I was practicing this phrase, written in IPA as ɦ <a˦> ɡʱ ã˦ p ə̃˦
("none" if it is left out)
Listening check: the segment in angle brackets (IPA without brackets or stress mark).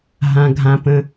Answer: ã˦